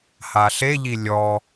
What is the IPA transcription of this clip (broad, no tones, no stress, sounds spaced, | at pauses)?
h a ɬ e ʎ i lʲ ɔ